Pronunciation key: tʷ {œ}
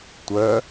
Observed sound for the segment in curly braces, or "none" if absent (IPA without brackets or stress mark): œ